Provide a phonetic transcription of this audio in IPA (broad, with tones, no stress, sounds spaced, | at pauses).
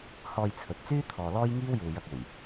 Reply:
h ɔː˧ j t͡sʰ ɵ˨ t̚ t͡s yː˥ t̪ʰ ɔː˨ l ɔː˥ j ŋ iː˥ w j uː˨ j ɐ˧ k̚ uː˨˩ j